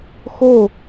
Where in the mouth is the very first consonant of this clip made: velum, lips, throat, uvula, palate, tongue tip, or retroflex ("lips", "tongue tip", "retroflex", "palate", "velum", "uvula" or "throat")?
velum